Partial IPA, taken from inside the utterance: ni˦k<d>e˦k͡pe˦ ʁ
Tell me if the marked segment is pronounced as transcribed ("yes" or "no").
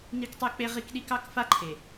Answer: no